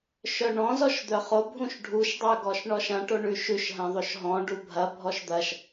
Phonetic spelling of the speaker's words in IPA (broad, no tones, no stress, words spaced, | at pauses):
ʃœɳɔ̃zɔʃd̪œ χobʱũʃ ɖʱuʃdˤœɡɔʃ ɳɔʃɐ̃ ʈoɳʉʃʉʃ ɦɐ̃ðˤoʃɦɔ̃ ɖubʱɐ bʱɔʃd̪ɐʃ